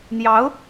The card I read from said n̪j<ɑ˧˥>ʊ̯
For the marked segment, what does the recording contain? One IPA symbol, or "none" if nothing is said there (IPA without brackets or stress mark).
ɑ˧˥